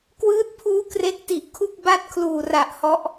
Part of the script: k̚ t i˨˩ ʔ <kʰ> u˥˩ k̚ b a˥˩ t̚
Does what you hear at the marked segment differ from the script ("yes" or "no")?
no